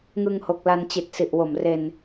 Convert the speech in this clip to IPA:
ŋɯ˧ŋho˨˩k̚la˧n t͡ɕi˨˩t̚si˨˩ʔwo˨˩mre˧n

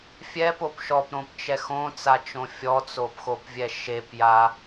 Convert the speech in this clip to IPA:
fʲɛpop ʃɔpɾõpt͡ʃɛ xõt͡sat͡ʃõ fʲɔt͡sopxopvʲɛ ʃepja

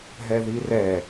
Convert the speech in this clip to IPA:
ɦɛðirɛ

